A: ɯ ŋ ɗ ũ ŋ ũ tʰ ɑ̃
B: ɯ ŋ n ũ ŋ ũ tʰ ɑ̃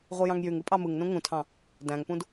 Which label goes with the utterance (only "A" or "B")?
B